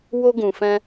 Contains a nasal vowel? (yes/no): yes